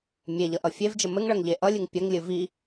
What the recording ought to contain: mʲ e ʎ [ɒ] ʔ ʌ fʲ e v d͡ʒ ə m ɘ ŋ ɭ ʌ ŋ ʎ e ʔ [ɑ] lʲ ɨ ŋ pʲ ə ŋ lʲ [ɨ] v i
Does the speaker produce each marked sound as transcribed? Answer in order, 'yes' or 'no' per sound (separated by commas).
no, no, yes